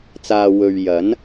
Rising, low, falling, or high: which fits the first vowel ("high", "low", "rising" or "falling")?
low